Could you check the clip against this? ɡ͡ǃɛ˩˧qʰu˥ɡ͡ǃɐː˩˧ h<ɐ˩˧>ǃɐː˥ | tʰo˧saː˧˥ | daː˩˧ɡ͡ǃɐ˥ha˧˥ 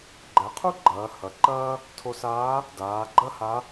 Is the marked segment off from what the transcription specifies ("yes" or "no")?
no